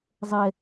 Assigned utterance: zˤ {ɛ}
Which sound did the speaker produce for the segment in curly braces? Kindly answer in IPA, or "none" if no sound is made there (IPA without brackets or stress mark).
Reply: ɛ